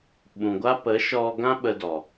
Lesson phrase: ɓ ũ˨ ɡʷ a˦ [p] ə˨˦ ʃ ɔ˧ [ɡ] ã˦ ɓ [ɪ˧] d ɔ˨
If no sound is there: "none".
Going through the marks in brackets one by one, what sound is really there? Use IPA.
p, ɡ, ə˧

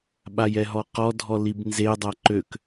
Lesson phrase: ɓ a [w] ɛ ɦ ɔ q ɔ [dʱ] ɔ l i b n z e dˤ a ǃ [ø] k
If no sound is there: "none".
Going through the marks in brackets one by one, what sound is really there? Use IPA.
j, dʱ, ø

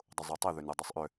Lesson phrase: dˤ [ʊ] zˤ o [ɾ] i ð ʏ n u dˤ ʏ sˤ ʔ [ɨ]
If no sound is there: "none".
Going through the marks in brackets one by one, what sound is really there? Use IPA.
ʊ, tˤ, ʏ

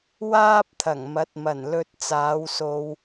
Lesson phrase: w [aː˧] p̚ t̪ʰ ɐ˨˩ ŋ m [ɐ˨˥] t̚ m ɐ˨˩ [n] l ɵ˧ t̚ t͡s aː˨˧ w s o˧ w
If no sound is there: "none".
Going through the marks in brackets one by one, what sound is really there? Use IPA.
aː˥, ɐ˨˥, n

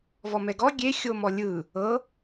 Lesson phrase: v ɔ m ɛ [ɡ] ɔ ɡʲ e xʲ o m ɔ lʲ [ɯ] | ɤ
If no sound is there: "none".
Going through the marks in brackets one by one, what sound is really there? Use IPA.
ɡ, ɯ

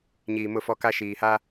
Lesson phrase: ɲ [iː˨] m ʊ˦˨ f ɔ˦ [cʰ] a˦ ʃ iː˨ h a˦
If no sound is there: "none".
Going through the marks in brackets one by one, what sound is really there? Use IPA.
iː˨, k

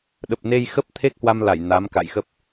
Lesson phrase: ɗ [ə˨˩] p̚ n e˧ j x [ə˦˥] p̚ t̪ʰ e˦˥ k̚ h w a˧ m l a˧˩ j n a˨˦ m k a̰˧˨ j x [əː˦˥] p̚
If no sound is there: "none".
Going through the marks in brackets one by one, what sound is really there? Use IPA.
ə˨˩, ə˦˥, ə˦˥

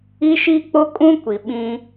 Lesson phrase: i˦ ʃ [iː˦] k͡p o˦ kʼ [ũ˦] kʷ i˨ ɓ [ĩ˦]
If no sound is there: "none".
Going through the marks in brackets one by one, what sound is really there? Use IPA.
iː˦, ũ˦, ĩ˦

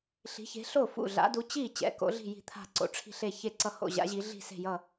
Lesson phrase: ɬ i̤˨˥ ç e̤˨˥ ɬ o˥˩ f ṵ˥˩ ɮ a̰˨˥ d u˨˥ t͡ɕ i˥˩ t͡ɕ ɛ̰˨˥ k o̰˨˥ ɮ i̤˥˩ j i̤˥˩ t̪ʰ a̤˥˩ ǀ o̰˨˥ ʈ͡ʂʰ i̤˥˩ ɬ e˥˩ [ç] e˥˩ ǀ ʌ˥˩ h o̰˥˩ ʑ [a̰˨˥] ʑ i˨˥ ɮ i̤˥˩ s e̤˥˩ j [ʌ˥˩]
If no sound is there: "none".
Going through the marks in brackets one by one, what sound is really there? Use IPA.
ç, a̰˨˥, ʌ˥˩

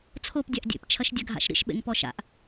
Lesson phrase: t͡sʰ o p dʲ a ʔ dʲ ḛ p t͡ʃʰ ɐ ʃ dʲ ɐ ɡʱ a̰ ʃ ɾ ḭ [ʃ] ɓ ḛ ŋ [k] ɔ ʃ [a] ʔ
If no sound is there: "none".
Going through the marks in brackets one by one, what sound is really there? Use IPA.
ʃ, p, a̰

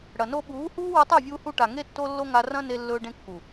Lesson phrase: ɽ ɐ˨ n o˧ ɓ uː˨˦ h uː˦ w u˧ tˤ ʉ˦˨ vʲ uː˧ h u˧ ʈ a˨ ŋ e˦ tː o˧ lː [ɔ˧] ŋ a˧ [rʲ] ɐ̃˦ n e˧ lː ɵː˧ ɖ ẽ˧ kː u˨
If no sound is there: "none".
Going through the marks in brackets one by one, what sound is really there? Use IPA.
o˧, r

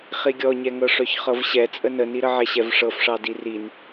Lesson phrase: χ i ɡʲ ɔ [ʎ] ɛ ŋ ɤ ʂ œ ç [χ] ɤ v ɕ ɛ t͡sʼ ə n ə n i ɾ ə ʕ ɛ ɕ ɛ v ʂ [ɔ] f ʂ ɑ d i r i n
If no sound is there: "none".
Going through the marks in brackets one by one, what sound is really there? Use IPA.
ɲ, χ, ɤ

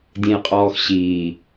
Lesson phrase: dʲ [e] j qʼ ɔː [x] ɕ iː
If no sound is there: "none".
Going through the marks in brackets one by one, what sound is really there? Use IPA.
ẽ, x

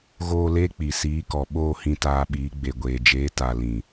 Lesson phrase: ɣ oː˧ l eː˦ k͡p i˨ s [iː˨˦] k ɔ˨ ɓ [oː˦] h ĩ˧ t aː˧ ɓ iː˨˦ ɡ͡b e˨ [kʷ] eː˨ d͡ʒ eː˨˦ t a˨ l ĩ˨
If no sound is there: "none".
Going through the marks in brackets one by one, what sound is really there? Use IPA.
iː˨˦, oː˦˨, ɡʷ

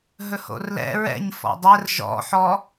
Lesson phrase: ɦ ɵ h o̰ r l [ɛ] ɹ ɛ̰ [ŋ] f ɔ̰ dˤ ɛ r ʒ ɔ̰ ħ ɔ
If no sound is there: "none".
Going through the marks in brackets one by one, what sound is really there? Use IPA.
ɛ̰, ɲ

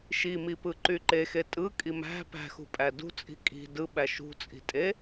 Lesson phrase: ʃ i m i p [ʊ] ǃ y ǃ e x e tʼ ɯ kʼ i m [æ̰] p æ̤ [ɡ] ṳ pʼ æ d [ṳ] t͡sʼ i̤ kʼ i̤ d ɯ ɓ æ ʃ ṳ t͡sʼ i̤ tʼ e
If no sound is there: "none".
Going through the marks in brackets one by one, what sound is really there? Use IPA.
ɯ, æ̤, x, ṳ

